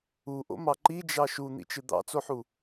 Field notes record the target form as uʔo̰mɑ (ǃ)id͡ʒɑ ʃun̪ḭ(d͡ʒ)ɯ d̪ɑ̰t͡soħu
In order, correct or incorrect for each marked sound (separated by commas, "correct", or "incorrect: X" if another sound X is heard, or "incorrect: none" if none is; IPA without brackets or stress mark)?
correct, incorrect: t͡ʃ